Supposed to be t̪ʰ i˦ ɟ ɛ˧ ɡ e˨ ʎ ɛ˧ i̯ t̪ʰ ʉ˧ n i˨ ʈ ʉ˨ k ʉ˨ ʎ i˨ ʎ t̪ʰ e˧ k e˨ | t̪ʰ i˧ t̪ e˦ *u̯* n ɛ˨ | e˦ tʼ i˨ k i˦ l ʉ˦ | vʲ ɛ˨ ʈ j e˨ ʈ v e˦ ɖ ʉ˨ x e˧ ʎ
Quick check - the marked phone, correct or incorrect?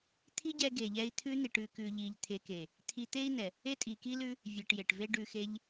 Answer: incorrect